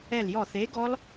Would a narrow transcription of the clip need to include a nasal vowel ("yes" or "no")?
no